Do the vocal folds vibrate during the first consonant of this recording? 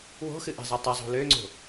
yes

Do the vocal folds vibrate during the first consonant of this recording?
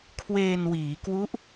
no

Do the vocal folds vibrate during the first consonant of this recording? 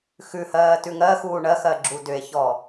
no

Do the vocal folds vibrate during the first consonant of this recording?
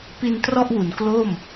no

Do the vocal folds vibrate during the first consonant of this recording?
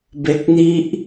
yes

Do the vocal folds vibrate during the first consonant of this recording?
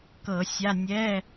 no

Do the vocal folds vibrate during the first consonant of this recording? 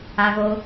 yes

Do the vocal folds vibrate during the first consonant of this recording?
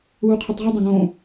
no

